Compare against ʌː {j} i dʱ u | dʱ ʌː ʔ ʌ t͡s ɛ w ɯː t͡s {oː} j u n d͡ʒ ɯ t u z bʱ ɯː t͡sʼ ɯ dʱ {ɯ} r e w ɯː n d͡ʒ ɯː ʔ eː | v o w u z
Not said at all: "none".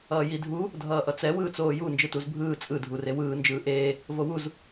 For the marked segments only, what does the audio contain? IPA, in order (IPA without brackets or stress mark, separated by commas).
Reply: j, oː, u